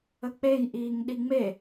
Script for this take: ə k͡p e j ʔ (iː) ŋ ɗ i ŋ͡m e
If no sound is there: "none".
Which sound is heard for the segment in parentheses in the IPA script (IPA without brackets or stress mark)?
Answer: iː